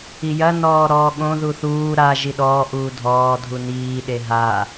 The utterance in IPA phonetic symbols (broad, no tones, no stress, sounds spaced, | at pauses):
i j ɐ n ɔː ɾ ɔː ɠ õ ð u θ uː ɾ a ʒ i ɗ ɔː ʔ uː dʱ ɔː dʱ u n iː ɗ e ɦ a